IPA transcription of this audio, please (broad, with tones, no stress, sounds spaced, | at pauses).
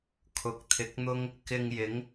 kʰ ʊ˨ k̚ t̪ʰ ɪ˨˥ k̚ n̪ ʊ˥ ŋ | k ɪ˧ ŋ j ɪ˨˥ ŋ